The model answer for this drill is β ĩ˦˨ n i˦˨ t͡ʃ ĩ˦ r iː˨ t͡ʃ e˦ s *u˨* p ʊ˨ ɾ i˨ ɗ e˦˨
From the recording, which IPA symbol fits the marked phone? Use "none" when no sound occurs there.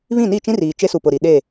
u˨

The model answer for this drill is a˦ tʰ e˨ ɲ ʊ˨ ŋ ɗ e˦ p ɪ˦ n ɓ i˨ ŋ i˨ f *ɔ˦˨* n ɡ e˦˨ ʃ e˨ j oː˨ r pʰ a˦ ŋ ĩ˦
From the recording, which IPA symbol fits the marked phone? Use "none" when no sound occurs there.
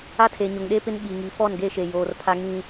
ɔ˦˨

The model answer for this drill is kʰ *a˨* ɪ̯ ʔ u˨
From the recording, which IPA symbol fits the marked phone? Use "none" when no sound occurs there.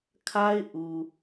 a˦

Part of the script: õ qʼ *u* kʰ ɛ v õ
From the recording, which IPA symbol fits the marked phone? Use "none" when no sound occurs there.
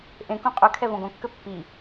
ø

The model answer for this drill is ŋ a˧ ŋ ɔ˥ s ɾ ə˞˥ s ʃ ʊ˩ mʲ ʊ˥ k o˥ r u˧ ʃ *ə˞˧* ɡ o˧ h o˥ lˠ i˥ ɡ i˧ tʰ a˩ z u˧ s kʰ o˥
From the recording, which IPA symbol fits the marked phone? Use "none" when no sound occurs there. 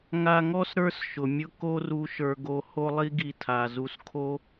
ə˞˧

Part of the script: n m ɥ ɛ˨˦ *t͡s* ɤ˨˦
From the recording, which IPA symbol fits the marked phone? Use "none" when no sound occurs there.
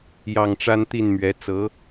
t͡s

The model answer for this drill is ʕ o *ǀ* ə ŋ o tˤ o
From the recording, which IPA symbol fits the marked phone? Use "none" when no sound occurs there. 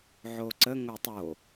ǀ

